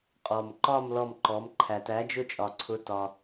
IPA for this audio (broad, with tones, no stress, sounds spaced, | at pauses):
qʼ ɔ˩ m ǃ ɒ˦˨ m l ɔ˦˨ m ǃ ɔ˩˥ m ǃʰ æ˩ t æ˩˥ d͡ʒ ʊ˦˨ t͡ʃʼ ɒ˩ ǀʰ ʊ˩˥ t ɒ˩